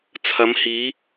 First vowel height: low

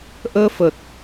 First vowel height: mid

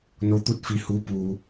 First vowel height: mid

